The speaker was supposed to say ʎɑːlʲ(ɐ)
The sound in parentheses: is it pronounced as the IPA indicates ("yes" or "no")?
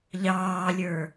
no